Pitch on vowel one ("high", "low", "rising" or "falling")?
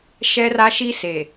high